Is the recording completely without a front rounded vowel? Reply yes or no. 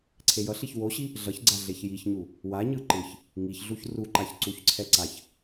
yes